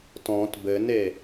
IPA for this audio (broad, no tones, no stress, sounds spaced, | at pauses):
t ɔ̃ t b ɘ n e